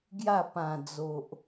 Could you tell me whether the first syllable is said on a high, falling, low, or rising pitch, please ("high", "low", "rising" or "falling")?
falling